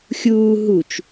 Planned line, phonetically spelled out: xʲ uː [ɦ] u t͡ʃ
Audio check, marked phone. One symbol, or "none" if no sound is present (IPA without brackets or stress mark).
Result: ɦ